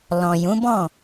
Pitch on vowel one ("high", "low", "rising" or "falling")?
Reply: low